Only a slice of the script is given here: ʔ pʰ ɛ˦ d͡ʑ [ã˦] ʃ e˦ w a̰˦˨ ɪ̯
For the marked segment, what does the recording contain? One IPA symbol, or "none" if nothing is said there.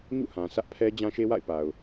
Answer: ã˦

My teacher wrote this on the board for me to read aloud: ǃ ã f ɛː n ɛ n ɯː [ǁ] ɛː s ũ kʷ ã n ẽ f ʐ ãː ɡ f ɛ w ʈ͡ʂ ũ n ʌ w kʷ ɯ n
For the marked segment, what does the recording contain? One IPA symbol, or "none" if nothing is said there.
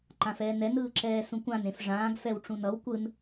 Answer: ǁ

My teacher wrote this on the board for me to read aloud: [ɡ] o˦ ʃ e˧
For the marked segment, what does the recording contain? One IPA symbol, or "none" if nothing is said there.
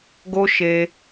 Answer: ɡ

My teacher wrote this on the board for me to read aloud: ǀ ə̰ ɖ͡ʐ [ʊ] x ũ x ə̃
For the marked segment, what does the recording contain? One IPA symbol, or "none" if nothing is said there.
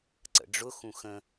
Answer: ʊ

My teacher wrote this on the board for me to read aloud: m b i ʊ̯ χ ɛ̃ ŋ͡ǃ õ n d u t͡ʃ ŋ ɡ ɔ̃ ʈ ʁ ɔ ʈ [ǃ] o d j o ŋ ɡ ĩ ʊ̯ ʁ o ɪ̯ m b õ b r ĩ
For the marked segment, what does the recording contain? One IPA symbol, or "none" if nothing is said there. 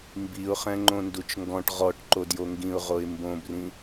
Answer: ǃ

